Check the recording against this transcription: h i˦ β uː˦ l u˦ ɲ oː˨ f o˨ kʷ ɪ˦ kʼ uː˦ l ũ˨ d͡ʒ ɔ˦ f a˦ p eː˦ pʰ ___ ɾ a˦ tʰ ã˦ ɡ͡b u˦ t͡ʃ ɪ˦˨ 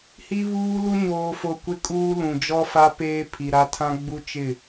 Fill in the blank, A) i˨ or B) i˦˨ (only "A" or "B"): A